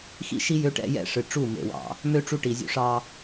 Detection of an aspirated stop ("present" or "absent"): absent